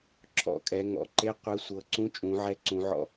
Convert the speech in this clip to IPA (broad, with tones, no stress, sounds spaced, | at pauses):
ǁʰ ɔ̰˨˩ kʼ ɛ˩˧ ŋ ɔ̰˩˧ ǃ e˧˥˧ qʷ ɯ˨˥ sʷ ɤ˨˩ ǀ ũ˧˥˧ t͡ʃʼ ũ˩˧ ʕ ɛ˨˥ ǀ ũ˩˧ ʕ ɔ̰˨˩